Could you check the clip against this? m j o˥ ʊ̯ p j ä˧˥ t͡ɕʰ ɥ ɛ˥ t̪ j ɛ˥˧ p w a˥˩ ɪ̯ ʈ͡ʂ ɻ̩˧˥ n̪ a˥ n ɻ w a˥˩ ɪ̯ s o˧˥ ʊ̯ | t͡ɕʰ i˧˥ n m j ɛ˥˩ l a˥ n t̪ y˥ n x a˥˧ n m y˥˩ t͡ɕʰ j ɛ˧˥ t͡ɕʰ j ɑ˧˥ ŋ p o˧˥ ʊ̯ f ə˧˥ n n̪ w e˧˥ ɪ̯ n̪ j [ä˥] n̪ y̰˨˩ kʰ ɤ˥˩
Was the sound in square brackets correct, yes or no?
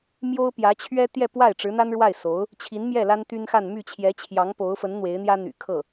yes